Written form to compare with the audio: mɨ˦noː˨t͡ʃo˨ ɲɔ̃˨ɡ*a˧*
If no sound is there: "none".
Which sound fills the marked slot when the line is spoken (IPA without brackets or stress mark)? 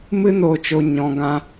ã˧